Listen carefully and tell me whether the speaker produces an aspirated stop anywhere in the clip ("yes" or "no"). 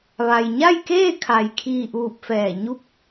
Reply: yes